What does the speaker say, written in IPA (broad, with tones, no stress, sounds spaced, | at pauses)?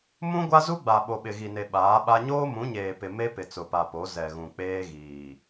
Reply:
m ũ˦ ɡʷ a˦ z u˦ ɡ͡b a˨ ɓ o˨ ɓ ɪ˨ ɣ i˨ n e˨ ɓ aː˨˦ ɓ a˦ ɲ oː˦ m ũ˨˦ ɲ eː˨ p ɪ˨ m e˦ p ɪ˨ t͡s ʊ˨ p a˨ p o˨˦ z ɛ˨ ɣ ũ˨ k͡p eː˦ ɣ iː˨